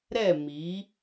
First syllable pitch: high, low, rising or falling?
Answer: falling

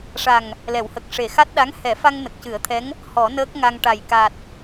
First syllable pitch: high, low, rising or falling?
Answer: low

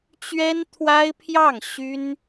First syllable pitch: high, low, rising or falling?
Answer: high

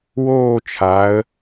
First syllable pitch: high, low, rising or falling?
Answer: falling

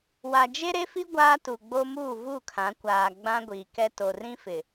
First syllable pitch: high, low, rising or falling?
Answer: low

